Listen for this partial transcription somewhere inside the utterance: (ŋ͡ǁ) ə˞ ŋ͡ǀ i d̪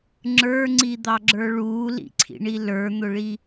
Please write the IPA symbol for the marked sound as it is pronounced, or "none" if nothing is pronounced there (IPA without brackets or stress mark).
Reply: ŋ͡ǁ